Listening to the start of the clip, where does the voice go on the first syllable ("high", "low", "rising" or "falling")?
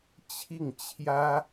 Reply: falling